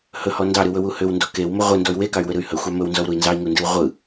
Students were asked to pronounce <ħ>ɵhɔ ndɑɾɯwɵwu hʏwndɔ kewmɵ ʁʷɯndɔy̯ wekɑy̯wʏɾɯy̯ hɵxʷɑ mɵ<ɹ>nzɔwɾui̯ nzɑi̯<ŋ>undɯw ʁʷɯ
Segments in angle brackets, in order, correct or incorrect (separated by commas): incorrect, incorrect, correct